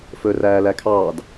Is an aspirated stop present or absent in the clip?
present